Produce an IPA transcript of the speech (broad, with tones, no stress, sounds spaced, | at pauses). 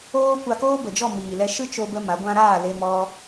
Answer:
oː˦ kʷ a˧ k oː˦ b ə˨ d͡ʒ ɔ˦˨ m iː˨ l ɛ˧ ʃ ɨ˦ t͡ʃ o˧ b ə˧ m a˨˦ ɡʷ ã˦ ɾ aː˦˨ l e˧ m ɔ˧